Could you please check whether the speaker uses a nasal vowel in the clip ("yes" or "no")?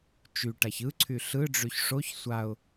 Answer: no